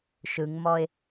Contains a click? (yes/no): no